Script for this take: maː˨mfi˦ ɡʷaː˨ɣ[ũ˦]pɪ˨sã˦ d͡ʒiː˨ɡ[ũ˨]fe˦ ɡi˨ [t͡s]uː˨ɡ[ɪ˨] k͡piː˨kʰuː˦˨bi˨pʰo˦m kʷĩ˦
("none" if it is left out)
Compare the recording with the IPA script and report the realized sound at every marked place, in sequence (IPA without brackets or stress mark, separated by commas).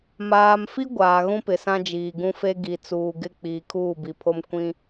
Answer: ũ˦, ũ˦, t͡s, ɪ˦˨